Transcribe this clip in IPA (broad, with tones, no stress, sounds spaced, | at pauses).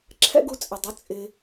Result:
ǁʰ ɛ̰˦ ɡ u˧ t͡sʼ ɪ˨ dˤ ʊ˨˦ t͡sʼ ɪ˧